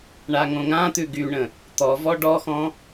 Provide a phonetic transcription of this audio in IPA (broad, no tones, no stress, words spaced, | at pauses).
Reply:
ɳaŋõŋãt̪ʉ ɡyɳə̃ | t̪ɔvɔ ɖɔxɔ̃